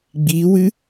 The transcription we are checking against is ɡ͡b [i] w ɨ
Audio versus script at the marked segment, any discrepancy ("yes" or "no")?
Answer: no